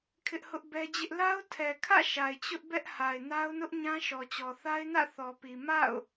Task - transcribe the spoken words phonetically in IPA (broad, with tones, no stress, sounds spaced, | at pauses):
kʰ ɪ˦ ʔ h ʊ˦ ʔ b ɛ˦ d͡ʑ ɪ˦ ʔ l a˦ ʊ̯ tʰ ɛ˨ kʰ ä̰˦˨ ʃ a˨ ɪ̯ t͡ɕ ʊ˦ ʔ b ɛ˦ ʔ h a˨ ɪ̯ n a˦ ʊ̯ n ʊ˦ ʔ ɲ ã˦ ʃ ɔ˨ t͡ɕ ɔ˨ θ a˦ ɪ̯ n ä̰˦˨ θ ɔ˨ p i˨ m a̰˦˨ ʊ̯